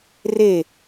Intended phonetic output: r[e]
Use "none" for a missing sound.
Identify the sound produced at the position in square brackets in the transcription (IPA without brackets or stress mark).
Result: e